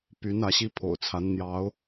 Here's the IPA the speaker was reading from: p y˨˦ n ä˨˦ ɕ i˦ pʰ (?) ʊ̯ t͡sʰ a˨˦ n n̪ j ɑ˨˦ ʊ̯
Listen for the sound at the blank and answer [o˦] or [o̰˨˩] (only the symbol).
o̰˨˩